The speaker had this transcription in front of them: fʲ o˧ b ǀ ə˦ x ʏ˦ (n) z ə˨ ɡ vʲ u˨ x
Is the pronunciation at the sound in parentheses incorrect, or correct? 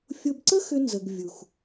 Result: correct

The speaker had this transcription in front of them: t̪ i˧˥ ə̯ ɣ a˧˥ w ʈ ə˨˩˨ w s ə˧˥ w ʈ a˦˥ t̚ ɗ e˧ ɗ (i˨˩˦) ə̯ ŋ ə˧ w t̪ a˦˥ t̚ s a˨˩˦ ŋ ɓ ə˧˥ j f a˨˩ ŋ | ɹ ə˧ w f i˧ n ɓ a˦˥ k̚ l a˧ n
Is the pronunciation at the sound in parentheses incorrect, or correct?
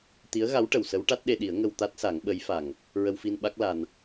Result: correct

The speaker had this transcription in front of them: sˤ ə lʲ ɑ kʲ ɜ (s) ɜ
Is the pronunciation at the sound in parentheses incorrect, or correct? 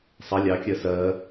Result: correct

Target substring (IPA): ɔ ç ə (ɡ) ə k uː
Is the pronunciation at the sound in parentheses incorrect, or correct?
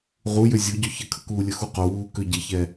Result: incorrect: kʰ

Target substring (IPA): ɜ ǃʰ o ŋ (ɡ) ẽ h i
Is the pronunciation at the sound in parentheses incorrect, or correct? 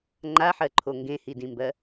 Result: correct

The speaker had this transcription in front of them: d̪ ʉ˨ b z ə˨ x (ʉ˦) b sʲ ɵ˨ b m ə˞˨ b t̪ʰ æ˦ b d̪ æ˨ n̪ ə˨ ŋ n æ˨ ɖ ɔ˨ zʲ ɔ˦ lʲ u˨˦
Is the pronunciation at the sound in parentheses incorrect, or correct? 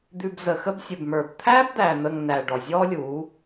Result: incorrect: ə˦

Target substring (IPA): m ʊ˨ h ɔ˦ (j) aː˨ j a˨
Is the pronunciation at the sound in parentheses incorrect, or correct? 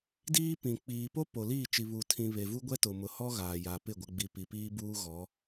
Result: incorrect: ɣ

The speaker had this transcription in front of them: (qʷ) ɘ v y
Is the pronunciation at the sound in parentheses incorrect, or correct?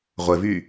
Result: incorrect: ʁʷ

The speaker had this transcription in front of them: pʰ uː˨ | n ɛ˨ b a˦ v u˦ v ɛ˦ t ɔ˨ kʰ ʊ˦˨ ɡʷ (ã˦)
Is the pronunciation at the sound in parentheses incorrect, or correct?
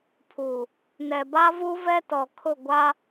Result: incorrect: a˦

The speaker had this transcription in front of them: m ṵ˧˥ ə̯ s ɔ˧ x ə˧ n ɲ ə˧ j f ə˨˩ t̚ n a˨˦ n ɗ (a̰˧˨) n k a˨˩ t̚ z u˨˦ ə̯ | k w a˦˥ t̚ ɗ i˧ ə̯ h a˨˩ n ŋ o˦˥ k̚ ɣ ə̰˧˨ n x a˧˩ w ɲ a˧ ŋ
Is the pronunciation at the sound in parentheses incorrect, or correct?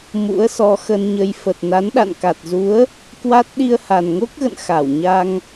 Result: correct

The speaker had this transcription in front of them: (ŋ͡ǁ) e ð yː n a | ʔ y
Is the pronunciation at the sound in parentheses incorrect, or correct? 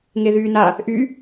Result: incorrect: ŋ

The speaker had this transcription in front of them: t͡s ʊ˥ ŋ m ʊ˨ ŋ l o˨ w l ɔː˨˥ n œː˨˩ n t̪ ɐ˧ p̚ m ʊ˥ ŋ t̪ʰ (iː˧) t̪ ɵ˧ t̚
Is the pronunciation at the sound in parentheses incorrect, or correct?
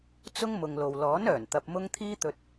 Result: incorrect: iː˥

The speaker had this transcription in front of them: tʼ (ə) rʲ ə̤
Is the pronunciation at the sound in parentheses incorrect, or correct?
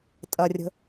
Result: incorrect: ɐ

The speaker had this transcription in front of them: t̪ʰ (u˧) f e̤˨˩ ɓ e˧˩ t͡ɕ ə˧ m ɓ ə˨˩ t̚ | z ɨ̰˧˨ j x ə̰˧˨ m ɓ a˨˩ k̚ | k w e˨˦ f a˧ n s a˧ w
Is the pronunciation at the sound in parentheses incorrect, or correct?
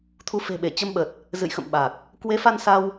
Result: correct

